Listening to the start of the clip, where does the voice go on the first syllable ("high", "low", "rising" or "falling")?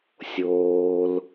low